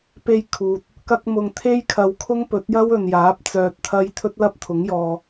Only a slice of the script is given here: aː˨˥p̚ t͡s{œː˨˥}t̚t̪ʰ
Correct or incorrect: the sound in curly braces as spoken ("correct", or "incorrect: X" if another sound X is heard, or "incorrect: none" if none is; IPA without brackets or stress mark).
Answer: incorrect: œː˧